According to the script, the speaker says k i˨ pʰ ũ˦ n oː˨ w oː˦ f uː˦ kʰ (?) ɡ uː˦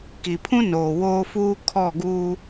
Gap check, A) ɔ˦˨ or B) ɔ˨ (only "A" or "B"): A